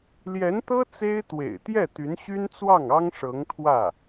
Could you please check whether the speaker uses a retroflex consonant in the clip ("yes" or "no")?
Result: yes